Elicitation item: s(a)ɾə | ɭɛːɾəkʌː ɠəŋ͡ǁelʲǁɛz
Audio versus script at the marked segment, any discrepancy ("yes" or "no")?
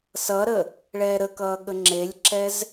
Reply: yes